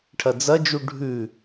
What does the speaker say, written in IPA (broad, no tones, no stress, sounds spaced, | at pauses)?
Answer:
ʈʰ ɐ d͡z ɐ d͡ʒ u ɖʱ ʉ